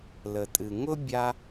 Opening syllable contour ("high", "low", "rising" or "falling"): low